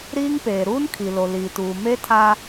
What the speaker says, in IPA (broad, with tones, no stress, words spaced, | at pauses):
ɾiː˦ŋpeː˨ ɾuː˦nkʰi˨lo˨ liː˨tuː˨ me˦tʰa˦